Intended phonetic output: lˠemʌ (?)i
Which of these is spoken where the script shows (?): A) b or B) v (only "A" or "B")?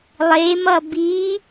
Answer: A